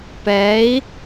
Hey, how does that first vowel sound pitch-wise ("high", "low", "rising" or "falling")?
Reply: rising